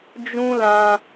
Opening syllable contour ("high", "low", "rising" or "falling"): high